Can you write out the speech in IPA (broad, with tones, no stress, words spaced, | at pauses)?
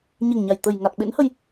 ɲe˨˩ŋɲa˨˩j t̪ə˨˩jŋa˨˩t̚ ɓḛ˧˥nhə˧j